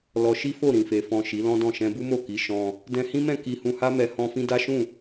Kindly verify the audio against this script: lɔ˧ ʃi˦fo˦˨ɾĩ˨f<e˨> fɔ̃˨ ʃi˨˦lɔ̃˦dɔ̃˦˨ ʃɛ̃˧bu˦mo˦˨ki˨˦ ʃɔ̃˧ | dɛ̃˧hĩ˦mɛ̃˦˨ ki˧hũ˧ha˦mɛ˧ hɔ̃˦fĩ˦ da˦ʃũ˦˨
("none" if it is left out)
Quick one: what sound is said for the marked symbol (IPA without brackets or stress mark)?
e˨